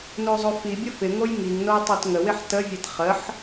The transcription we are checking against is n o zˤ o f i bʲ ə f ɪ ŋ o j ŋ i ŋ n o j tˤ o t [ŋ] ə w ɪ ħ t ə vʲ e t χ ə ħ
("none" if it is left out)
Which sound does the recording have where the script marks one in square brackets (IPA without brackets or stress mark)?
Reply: ŋ